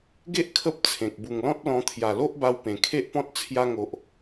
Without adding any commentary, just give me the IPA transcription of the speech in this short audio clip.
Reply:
ɡ e˦ ʔ kʰ ə˦ p̚ t͡sʰ ẽ˨ k̚ b u˨˩ ŋ l ɔ̃˦ t̚ l ɔ̃˧ t̪ʰ j a˨˩ l o˦ ʔ b a˧ w p ẽ˨˩ kʰ e˦ ʔ p ɔ̃˦ t̚ t͡sʰ j a˧ ŋ o˨ ʔ

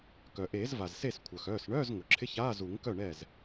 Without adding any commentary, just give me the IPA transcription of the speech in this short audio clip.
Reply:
k œ˩ ʔ eː˨˩˦ z v a˩ z s e˥˩ s kʷʰ œ˩ x œː˩˧˩ s ɳ œː˧˥˧ z ŋ ʊ˩ ǁʰ ɪ˧˥˧ ç aː˧˥˧ z u˨˩˦ ŋ k œ˥˩ ɳ ɛː˥˩ z

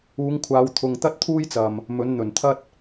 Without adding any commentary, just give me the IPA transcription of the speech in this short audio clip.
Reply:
uː˨˧ ŋ kʷʰ aː˨˧ w t̪ʰ ʊ˨ ŋ t̪ ɐ˥ t̚ t̪ʰ uː˥ j t͡s ɐ˨ m | m ɵ˨˧ n n̪ ɵ˨˩ n t̪ʰ ɐ˥ t̚

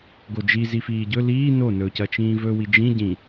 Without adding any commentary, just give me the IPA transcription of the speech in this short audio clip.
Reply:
ɡ o d͡ʒ i z i f iː ɟ ɵ l iː n o n ɵ c ɐ t͡ʃ ĩː v ɵ w i d͡ʒ ĩ ɟ ĩ

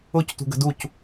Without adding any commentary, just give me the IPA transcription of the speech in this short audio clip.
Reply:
ʊ c t ṳ ɡ ə̤ d u c

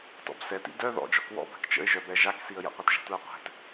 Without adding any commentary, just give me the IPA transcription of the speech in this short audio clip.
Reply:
t ɔ̰ b s ɛ t ḭ d œ ð ɔ̰ d͡ʒ ɔ k w ɔ̰ b a̤ k t͡ʃ ə̰ ɪ̯ ʒ œ b ɛ ʒ a k s i ə̯ j ə̰ qʷ ʌ t ʒ ɛ̤ tʷ ɛ ʊ̯ qʷ ɛ̤ t

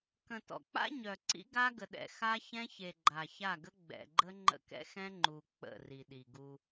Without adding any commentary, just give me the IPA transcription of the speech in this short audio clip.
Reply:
k ə̃˨ t ɔ̰˨ k͡p a̰˦ ɲ œ˨ ǀ ḭ˦ ɡ a˦ ɡ ə˨ ɗ ɛ̰˨ x a˦ ç ɛ̃˦ ç e˨ ɡ͡ǃ a˨ ç a˦˨ ɡ ə˦ ɡ͡b ɛ̰˨ ɡ͡ǃ ə˦ ŋ͡ǃ ə̰˦˨ k ɛ̰˦ x ɛ̃˦ ŋ͡ǃ u˨ k͡p ə̰˦˨ r i˨ ɗ i˨ ɡ u˦

